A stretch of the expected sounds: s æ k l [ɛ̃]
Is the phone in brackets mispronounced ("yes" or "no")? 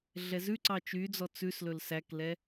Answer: yes